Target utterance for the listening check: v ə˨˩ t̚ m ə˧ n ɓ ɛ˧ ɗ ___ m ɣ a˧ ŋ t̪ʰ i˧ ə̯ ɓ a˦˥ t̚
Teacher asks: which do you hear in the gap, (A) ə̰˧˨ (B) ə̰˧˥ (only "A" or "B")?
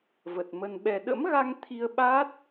B